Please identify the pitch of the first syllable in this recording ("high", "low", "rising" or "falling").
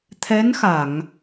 rising